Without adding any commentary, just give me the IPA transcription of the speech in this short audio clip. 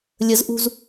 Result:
lʲ ə z ʔ ṳ z

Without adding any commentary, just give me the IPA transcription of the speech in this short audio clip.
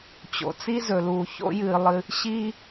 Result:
t͡ɕ o̰˩ t͡s i˥ z ɵ˩ l uː˩ ç o̰˥ j ɨː˩ lˠ ɨ˩ | ɕ iː˥

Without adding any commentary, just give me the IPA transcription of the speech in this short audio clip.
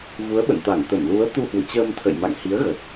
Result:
v u˨˦ ə̯ ɓ ə̰˧˨ n t̪ a˧˩ ŋ t̪ ə˧˩ m l u˨˦ ə̯ t̪ u˧ h w ɨ̰˧˨ t͡ɕ əː˧ m t̪ʰ ə̰˧˨ j m a̰˧˨ ŋ h i˨˦ ə̯ ɣ ə˨˩ t̚

